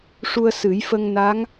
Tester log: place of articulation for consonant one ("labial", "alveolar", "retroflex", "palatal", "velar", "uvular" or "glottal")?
retroflex